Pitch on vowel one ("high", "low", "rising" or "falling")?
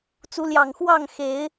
rising